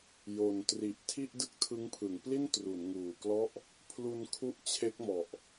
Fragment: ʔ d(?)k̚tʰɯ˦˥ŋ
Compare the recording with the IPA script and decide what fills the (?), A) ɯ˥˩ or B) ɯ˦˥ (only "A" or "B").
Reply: A